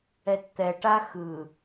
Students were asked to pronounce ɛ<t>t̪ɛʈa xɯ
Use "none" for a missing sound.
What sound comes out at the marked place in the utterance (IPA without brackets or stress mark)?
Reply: t